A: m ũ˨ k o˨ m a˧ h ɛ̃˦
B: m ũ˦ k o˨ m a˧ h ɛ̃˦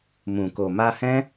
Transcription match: A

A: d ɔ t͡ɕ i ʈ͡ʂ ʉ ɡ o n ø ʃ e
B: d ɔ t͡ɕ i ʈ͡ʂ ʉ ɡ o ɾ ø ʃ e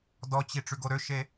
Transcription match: B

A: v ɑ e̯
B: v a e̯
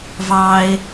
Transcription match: A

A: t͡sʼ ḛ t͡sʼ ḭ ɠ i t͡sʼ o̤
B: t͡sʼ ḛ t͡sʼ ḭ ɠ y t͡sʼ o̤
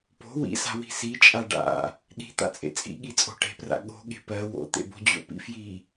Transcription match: A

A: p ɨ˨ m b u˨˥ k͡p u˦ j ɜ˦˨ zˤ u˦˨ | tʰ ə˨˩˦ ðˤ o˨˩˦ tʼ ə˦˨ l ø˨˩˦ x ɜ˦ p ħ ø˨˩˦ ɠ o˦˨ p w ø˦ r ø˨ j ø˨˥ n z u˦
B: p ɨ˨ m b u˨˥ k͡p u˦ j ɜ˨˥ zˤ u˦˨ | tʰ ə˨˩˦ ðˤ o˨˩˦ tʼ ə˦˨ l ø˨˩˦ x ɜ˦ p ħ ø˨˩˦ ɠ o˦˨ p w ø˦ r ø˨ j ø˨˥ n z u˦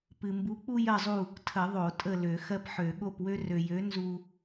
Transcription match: A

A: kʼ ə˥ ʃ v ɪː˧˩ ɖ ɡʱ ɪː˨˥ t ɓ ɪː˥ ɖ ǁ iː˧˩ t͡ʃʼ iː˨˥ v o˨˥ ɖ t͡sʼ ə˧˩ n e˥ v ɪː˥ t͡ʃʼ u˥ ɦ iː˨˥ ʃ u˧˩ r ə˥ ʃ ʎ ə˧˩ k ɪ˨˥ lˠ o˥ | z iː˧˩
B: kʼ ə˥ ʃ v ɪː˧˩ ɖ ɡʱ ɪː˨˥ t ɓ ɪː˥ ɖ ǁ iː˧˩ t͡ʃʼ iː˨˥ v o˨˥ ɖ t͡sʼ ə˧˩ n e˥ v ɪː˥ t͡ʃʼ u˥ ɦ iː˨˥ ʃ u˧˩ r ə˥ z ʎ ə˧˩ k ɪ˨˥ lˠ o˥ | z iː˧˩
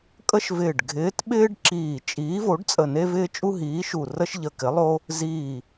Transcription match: A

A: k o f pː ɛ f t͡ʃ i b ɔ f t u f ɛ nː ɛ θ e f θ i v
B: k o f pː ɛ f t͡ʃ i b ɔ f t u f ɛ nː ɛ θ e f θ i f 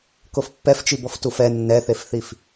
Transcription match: B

